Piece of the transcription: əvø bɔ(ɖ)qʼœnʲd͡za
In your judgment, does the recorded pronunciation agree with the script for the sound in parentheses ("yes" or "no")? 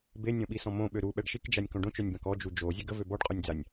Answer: yes